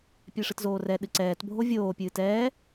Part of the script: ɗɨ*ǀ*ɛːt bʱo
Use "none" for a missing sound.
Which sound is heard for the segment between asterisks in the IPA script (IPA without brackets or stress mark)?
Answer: ǀ